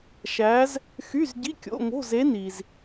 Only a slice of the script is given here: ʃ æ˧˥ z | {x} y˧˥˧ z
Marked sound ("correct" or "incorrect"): correct